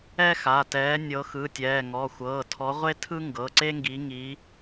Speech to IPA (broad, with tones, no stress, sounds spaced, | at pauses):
ɛ˥ x a˩˧˩ t ɛː˨˦ nʲ ɤ˨˦ x ɯ˩˧˩ tʲ ɛː˩˧˩ ŋ ɔ˩˧˩ xʷ ɤː˩˧˩ tʰ ɔ˨˦ ʁʷ e˥ tʰ ɯ˥ ŋ ɡ ɤ˩˧˩ ǀ e˥ ŋ ɡ i˨˦ ŋ i˨˦